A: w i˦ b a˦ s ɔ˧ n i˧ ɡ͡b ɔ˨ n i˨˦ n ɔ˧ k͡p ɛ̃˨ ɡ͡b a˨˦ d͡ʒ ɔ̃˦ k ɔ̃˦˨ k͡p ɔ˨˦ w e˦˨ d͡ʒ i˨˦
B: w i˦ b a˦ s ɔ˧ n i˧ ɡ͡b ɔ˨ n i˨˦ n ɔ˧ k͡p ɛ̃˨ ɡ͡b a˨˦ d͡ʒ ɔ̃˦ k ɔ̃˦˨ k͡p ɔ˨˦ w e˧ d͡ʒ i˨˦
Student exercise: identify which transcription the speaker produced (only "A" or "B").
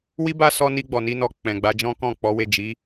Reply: A